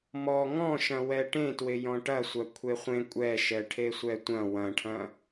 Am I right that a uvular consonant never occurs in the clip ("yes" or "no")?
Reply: no